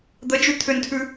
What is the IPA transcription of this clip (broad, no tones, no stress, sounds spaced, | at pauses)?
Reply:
d̪ ə d͡ʒ ʉ t̪ʰ ʏ n tʰ ʉ